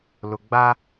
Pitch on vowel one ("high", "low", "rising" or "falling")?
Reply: low